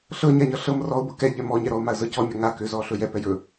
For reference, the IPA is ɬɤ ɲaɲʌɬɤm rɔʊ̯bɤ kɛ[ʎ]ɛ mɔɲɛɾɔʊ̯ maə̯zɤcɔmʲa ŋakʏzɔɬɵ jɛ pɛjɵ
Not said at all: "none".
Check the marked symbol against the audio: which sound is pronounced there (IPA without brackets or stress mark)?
ʎ